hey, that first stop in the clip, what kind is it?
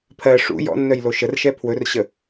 aspirated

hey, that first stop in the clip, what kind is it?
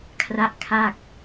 aspirated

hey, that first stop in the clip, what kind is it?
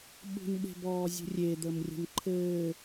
implosive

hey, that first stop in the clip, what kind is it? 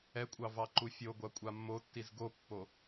ejective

